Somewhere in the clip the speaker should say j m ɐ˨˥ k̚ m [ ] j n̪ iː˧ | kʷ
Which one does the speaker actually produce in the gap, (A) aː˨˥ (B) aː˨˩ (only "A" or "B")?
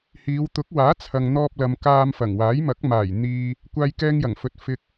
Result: B